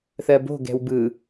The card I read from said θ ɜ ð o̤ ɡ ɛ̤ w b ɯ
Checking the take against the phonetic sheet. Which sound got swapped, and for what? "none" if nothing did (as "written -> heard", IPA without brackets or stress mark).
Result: ð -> b